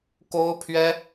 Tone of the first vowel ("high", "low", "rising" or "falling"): high